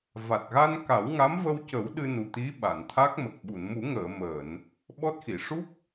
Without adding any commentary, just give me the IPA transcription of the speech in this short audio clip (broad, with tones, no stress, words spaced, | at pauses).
va˨˩t̚ɣa˧n ka˨˩˦wŋa˧˥mvə˧wcə˨˩˦w ɗɨ˧nu˨˩t̪i˧˥ ɓa˨˩˨nt̪ʰa˦˥k̚mə˨˩k̚ ɓu˨˩˨nmu˨˩˦ŋəː˨˩˨ məː˨˩˨n | ɓɔ˦˥t̚xi˨˩˨ ʂu˦˥k̚